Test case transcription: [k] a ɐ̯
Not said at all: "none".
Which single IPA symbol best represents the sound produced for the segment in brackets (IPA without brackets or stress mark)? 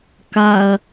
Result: k